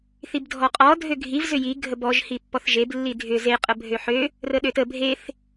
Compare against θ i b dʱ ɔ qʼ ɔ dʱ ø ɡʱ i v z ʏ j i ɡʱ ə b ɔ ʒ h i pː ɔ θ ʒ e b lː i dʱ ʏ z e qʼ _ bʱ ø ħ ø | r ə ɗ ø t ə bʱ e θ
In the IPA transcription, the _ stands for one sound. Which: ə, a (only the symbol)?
ə